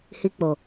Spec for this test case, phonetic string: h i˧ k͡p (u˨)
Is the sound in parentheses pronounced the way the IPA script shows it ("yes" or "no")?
no